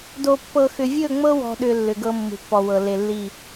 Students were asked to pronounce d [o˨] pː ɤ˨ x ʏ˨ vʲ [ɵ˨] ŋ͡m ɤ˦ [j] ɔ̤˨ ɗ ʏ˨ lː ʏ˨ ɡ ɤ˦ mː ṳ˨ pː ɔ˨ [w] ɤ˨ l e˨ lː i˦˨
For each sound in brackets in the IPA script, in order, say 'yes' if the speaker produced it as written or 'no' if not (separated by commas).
yes, no, no, yes